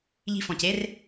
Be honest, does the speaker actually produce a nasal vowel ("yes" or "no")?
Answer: yes